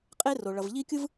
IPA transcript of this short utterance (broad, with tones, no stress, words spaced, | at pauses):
qʼe˦ ro˨ɭʌ˨v ʎi˦kʲɯ˦v